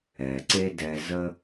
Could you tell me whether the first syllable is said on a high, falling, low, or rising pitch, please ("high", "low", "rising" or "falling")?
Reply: low